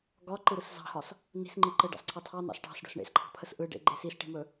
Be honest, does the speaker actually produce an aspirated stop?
yes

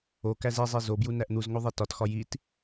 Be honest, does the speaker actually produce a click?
no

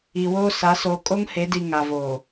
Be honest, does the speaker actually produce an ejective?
yes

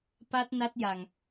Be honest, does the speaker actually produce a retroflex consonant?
no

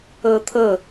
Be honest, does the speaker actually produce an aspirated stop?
yes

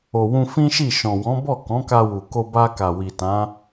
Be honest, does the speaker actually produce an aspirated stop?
no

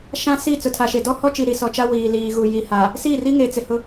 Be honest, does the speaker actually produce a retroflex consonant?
no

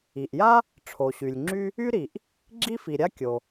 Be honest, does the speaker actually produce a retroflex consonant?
yes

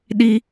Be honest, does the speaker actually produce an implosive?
yes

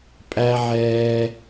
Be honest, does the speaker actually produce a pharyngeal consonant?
yes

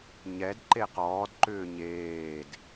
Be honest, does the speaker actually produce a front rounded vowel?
yes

